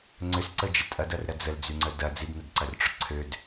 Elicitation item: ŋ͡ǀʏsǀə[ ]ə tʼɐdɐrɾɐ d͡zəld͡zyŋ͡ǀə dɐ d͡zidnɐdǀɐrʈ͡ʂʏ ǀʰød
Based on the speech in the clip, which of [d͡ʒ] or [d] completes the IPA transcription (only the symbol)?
d͡ʒ